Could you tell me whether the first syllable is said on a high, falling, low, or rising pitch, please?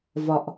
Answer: low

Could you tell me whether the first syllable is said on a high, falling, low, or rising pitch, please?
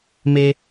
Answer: high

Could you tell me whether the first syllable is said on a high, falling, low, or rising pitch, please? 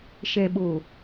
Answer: low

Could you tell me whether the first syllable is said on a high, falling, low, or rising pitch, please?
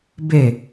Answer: falling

